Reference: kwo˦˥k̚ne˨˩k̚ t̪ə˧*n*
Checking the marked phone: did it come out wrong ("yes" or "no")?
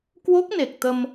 yes